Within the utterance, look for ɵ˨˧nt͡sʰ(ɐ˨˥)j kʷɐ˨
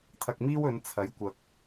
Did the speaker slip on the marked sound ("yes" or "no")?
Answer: no